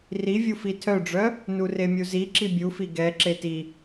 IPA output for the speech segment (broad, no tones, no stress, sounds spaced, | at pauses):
r i vʲ u f i tʰ œ ɖ͡ʐ œ | n u r e mʲ u z i ǁ i bʲ u f i ɡ ɛ ǁ e t i